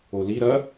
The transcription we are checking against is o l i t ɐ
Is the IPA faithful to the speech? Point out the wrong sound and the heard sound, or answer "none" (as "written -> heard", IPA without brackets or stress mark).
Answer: t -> ɾ